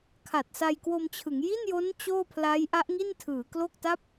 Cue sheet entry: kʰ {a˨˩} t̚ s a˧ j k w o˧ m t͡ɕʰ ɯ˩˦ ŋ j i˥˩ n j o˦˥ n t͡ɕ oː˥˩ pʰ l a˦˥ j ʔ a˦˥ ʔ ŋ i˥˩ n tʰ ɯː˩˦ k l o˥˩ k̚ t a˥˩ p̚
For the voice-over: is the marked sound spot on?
yes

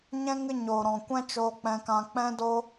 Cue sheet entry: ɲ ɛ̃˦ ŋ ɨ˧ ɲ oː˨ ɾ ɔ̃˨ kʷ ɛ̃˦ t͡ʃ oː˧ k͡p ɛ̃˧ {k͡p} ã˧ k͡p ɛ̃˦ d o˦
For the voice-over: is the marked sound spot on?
no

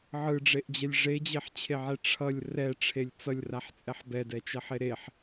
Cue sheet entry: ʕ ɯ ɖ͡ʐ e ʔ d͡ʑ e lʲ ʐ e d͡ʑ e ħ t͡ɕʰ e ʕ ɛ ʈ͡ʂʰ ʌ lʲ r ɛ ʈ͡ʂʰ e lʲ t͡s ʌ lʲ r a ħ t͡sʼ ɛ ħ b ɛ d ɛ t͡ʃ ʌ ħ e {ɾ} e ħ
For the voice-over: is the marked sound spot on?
yes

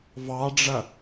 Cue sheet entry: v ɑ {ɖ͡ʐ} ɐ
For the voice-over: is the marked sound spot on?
yes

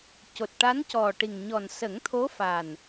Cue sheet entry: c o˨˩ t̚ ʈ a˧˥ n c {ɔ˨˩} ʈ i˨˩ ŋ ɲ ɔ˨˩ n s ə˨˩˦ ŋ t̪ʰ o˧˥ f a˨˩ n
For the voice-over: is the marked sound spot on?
yes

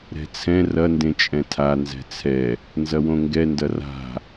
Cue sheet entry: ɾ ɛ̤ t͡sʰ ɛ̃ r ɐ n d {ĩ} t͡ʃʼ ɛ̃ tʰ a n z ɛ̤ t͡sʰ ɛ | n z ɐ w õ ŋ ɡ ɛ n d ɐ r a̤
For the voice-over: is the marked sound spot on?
no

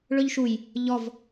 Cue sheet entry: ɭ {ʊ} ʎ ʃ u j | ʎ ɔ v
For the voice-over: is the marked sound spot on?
no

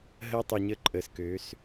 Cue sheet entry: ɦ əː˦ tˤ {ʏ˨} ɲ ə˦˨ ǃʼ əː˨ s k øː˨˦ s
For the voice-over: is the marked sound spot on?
no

